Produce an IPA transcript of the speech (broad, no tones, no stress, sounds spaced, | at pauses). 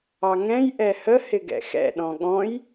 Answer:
ɑ ŋ ɛ̃ j ʔ ɛ h ə h ɪ ɡ ɛ̰ x ɛ̰ ɗ ɔ̃ ɠ ɔ̃ j